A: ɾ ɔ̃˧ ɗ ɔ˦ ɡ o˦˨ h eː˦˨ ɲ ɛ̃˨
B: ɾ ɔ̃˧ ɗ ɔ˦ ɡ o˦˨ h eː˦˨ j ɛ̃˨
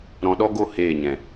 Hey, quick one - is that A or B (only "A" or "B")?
A